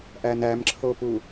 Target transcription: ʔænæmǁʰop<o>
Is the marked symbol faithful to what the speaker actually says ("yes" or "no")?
no